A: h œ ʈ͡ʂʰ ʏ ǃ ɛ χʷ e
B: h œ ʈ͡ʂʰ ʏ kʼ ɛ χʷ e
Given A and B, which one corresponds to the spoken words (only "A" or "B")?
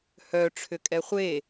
B